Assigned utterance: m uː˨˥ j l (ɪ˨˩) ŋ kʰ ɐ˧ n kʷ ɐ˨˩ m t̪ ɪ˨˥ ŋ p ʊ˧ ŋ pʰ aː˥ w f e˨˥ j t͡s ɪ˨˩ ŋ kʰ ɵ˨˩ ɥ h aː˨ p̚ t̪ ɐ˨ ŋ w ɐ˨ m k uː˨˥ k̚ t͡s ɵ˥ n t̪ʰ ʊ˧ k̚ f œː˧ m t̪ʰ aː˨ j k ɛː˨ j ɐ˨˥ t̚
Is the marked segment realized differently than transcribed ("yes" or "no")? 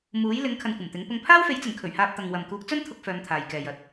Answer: yes